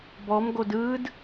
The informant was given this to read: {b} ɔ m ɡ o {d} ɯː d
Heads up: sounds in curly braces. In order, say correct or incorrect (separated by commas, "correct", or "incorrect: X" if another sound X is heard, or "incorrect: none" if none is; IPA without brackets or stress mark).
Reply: correct, correct